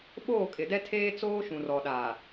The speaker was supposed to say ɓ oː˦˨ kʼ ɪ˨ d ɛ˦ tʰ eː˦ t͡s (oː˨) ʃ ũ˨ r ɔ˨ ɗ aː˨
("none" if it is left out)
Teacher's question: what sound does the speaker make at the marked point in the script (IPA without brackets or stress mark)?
oː˦